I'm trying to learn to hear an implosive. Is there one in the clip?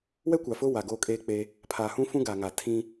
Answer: no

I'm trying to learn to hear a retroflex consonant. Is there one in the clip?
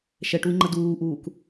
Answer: yes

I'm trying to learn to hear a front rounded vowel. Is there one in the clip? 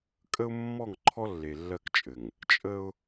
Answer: no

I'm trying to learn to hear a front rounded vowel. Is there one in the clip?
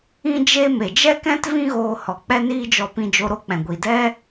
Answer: no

